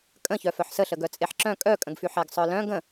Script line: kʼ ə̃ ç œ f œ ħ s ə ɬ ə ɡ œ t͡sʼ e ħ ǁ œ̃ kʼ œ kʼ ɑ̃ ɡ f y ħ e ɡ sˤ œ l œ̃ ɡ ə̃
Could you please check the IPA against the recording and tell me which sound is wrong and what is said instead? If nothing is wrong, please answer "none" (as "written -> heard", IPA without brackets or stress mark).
ɑ̃ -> ə̃